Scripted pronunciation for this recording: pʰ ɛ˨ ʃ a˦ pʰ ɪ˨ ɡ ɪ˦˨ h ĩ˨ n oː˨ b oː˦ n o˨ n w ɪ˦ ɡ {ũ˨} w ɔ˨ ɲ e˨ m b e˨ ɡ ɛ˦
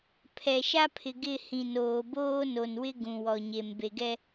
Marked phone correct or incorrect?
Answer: correct